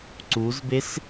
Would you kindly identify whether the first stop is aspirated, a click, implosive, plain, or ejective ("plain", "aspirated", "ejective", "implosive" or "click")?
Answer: click